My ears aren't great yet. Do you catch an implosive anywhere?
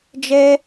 no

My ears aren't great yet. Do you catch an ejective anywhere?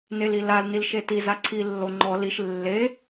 no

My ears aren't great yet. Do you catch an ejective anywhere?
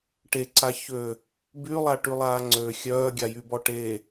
no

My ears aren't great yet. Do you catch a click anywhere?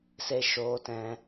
no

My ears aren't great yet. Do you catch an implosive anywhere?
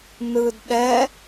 yes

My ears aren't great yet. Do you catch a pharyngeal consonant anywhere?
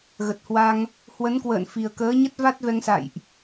no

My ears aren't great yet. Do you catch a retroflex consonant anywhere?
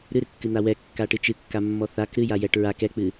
yes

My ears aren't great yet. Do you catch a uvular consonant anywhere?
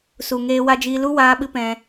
no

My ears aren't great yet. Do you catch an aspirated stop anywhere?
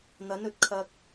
yes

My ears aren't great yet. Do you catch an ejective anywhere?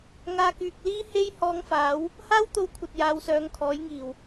no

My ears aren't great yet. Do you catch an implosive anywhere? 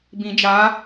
no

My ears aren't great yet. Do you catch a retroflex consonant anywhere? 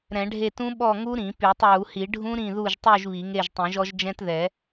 yes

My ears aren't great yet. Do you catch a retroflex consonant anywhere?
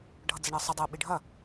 yes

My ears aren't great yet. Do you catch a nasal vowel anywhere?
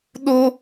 no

